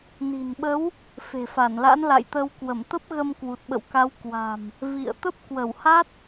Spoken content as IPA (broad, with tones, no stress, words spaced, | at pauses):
ni̤˨˩nɓə˨˦w | fe̤˨˩fa˧˩nla̰˧˥n la̰˧˨jt̪ə˧w kwə˧˩mt̪ə˦˥p̚ɣə˧m kwu˨˩t̚ɓə̰˧˨wka˨˦w kwa̤˨˩m | vḭ˧˨ə̯ t̪ə˦˥p̚kwə˧˩wha˦˥t̚